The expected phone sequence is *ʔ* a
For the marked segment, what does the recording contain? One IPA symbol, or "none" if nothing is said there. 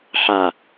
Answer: ħ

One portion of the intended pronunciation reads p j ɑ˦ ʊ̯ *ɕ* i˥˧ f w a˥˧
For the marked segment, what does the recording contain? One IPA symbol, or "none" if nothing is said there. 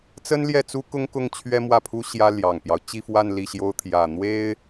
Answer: t͡ɕ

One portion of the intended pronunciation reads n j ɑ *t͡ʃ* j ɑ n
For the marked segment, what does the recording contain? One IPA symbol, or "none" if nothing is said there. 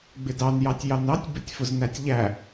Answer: tʲ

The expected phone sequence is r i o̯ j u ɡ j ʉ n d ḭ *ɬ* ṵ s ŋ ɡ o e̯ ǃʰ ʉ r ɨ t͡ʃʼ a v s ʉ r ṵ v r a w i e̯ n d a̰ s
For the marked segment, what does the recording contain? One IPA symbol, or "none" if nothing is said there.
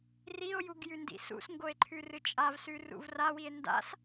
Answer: s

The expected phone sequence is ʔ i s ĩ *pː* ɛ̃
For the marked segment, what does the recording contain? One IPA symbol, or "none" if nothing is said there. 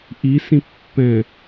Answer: pː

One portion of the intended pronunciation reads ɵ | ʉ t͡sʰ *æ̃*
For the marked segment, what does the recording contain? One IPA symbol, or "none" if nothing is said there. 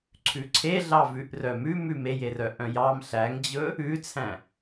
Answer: æ̃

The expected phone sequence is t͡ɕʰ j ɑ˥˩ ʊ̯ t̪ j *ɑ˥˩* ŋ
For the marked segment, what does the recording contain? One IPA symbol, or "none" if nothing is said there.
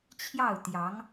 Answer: ɑ˧˥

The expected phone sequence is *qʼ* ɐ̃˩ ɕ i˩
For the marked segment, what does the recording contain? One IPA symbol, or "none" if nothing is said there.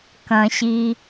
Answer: k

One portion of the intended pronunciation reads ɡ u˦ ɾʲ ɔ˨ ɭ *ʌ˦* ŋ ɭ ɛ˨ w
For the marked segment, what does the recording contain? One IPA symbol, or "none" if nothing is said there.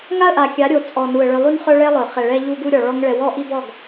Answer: ɔ˦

